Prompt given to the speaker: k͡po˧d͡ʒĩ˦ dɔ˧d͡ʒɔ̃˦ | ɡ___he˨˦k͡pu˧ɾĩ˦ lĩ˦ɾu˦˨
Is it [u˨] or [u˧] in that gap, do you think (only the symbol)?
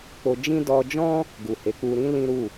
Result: u˨